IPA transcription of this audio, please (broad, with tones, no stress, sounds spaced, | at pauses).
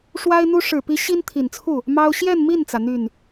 ʂ w a˥ ɪ̯ n̪ u˥ ʂ ɻ̩˨˩ p i˧˥ ɕ i˥ n t̪ʰ i˨˩ n t͡sʰ u˥˩ | m ɑ˥ ʊ̯ ɕ j ɛ˥˧ n m i˥˩ n t͡s ä˩ n̪ y˥˩ n